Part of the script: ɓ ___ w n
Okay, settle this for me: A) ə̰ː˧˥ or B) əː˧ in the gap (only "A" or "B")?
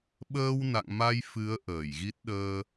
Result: B